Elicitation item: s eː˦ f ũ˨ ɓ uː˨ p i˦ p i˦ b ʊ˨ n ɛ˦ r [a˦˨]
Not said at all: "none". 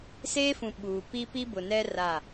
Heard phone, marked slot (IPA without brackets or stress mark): a˦˨